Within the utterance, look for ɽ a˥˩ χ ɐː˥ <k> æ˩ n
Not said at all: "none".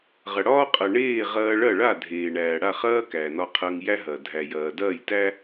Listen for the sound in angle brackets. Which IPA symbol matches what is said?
k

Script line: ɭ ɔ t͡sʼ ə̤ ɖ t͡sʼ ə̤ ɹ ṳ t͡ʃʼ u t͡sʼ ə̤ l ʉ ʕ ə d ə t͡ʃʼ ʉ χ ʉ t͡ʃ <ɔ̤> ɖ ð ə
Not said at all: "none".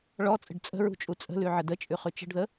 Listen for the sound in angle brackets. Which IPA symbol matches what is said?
ə̤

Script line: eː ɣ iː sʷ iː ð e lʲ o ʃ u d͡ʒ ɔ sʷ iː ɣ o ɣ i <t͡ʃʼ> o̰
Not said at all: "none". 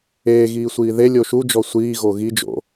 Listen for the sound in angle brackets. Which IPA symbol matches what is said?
d͡ʒ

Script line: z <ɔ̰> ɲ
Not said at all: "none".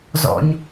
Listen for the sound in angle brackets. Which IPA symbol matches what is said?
ɔ̰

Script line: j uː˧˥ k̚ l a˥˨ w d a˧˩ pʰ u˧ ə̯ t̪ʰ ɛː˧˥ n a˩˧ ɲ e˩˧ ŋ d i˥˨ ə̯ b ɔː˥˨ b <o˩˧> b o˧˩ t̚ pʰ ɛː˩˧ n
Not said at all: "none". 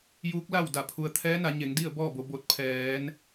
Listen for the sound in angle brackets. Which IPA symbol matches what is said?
o˩˧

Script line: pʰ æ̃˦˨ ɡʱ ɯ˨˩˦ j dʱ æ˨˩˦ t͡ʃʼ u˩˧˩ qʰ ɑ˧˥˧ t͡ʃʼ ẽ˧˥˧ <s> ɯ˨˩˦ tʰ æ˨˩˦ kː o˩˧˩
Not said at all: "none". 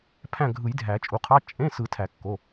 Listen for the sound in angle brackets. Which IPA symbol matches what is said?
s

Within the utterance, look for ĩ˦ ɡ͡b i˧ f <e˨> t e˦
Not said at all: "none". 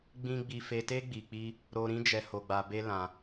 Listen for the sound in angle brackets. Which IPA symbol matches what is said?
e˧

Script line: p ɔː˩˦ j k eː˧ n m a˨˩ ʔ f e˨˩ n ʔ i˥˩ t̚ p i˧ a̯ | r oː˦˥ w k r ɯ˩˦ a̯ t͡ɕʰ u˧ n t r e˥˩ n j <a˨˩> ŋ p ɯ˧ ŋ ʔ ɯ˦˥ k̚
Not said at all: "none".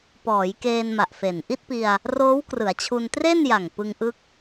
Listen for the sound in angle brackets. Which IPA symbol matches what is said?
a˨˩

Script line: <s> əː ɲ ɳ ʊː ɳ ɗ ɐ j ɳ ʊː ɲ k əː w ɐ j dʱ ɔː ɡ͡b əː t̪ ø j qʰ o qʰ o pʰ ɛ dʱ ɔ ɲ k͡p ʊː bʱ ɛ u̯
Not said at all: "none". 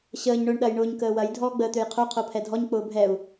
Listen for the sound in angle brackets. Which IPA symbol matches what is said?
ɕ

